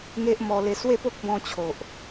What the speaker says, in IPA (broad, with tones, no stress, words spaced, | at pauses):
ŋe˦ʔmɔ˧le˧ swe˥˧po˦k̚bɔ̃˧ t͡ɕʰo˨ʔ